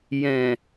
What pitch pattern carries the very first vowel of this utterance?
low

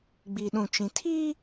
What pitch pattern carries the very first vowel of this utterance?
low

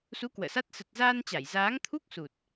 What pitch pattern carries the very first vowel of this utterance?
rising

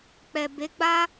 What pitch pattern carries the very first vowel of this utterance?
low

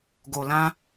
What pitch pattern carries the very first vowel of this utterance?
low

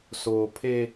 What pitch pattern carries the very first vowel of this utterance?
low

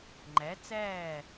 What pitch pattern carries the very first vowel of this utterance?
rising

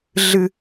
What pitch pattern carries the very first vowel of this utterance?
low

